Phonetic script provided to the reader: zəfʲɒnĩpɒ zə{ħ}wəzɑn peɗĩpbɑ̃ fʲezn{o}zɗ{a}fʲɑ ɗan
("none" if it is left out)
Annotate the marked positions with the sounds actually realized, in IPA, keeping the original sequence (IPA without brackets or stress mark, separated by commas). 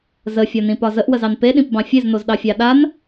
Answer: ʔ, o, ɑ